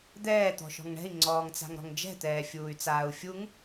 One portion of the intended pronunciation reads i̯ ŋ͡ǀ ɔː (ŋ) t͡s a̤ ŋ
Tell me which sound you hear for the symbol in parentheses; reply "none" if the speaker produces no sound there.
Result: ŋ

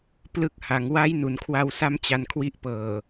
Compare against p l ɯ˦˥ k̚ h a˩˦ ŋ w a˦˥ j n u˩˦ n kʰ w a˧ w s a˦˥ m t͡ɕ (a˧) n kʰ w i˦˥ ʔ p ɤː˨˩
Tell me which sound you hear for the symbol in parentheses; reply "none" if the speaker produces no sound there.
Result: a˧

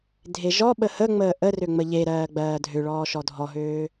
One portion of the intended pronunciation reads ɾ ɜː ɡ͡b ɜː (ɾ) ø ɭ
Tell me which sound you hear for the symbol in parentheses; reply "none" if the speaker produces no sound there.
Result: dʱ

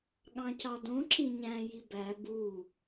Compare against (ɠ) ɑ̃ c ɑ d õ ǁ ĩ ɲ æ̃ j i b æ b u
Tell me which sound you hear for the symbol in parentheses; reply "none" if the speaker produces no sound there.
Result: ɠ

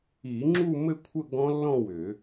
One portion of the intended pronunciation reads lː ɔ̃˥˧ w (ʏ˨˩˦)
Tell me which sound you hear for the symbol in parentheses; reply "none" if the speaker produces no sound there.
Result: ʏ˨˩˦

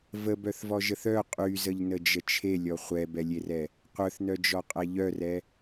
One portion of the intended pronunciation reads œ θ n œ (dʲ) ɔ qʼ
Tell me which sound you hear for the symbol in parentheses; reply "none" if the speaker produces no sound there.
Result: d͡ʒ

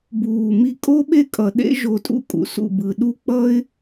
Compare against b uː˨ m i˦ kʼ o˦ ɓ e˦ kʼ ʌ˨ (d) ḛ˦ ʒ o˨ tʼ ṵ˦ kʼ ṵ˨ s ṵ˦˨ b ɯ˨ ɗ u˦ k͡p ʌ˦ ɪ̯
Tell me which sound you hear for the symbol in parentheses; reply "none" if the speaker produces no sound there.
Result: ɗ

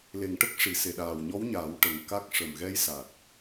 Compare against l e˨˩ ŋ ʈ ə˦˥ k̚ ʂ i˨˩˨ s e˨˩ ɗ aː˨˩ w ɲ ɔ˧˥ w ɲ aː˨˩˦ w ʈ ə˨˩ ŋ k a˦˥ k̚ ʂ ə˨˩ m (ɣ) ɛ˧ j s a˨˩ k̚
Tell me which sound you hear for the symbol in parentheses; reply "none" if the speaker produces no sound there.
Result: ɣ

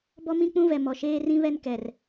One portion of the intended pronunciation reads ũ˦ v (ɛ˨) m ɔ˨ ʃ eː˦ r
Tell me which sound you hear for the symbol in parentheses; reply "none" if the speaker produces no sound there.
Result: ɛ˨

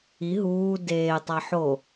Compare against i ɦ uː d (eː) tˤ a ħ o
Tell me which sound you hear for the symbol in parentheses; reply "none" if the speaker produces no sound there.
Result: eː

